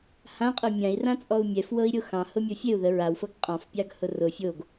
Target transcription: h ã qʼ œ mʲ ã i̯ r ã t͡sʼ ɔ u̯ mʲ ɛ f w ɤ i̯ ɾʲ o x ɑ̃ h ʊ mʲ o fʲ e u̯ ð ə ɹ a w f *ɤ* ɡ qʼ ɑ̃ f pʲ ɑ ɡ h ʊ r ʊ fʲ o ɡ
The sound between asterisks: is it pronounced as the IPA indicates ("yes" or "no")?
yes